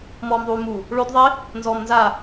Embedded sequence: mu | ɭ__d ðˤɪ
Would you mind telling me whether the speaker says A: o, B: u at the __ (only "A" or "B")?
A